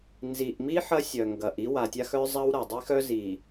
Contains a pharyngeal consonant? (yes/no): yes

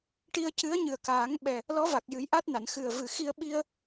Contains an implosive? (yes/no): yes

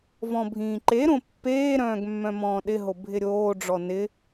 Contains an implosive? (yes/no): yes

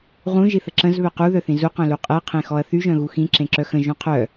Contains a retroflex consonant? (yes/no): no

